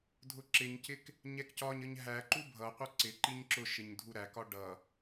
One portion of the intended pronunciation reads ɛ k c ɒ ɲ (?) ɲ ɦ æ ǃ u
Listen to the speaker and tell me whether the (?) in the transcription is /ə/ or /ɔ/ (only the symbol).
ə